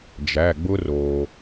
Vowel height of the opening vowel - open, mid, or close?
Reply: open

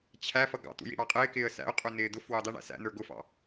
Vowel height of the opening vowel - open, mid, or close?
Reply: open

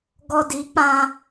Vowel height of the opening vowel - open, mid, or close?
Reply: mid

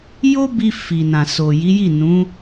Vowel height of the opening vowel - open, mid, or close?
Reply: mid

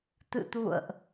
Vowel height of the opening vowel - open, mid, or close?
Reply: close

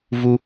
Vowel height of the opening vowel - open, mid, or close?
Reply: close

